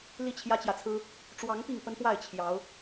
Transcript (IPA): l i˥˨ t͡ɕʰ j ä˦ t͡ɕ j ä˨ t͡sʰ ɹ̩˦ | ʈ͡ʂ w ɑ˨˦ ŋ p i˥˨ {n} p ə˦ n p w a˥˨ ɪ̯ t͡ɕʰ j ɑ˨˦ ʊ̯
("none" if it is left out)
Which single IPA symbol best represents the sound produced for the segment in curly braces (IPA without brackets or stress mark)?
ŋ